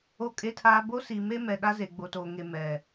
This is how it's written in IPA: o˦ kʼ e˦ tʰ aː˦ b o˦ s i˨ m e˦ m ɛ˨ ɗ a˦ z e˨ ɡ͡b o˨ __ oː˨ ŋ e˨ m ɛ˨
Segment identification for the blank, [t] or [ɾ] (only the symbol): t